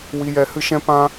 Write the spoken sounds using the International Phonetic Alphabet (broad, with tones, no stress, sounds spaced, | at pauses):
w i˧ j ɛ˧ h ɨ˦ ʃ ɛ̃˦ p ã˦